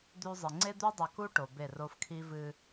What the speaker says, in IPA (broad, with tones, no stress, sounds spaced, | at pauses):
d̪ ʉ˦ zˤ ɨ˨ ŋ͡ǀ e˦ d̪ ʉ˦ dˤ ɵ˨ k u˦ ʈ o˨ b e˦˨ r o˦ f kʰ i˦ v ɨ˦